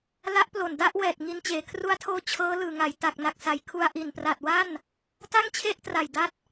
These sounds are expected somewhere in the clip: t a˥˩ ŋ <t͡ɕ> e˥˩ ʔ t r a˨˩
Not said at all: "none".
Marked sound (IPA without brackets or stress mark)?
t͡ɕʰ